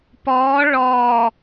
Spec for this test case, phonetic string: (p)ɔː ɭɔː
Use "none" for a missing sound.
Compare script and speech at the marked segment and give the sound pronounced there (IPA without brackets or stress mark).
p